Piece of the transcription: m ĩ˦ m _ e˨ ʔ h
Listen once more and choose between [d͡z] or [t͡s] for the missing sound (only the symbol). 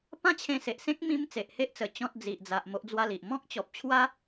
t͡s